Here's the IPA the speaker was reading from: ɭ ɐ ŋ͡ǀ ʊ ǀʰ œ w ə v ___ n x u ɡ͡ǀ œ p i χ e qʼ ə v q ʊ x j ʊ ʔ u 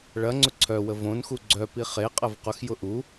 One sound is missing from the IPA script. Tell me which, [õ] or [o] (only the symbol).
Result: õ